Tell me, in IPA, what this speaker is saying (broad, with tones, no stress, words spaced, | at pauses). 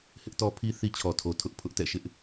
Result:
hɪ˦ʔtɔ˦pʰi˦ θi˦t͡ɕʰɔ˨tʰo˨ tʰʊ˦ʔpʰʊ˦ʔtɛ̰˦˨ ʃɪ˦ʔ